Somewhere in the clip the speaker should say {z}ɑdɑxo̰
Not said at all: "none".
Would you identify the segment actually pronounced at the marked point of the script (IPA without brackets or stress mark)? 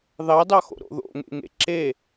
ð